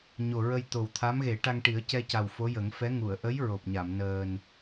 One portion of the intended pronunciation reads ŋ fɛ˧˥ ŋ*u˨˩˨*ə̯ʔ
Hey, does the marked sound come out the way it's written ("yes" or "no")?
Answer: yes